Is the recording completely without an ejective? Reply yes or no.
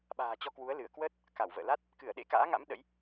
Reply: yes